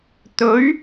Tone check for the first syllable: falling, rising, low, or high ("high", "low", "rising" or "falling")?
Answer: rising